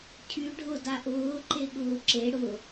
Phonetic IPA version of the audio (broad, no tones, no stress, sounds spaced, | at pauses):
cʰ y ɖʱ ʊ d a ʔ ʊː ǃ e ɠ ʊː ǁ e ɽ ʊ